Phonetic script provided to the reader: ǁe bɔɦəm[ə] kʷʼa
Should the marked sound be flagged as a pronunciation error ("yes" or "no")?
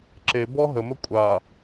no